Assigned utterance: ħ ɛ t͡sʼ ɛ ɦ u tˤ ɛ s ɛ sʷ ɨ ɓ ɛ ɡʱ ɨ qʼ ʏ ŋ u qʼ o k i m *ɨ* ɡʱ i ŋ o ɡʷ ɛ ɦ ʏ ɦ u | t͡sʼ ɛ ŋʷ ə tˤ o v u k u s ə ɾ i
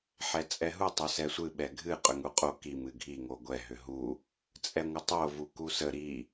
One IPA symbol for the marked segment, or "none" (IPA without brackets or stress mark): ɨ